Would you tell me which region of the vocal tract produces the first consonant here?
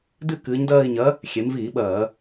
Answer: tongue tip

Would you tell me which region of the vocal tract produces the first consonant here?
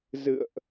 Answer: tongue tip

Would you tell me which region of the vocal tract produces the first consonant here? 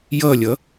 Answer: palate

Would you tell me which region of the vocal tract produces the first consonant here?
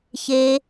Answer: palate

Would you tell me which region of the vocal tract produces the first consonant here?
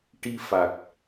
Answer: retroflex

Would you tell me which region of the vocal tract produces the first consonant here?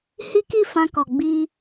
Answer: throat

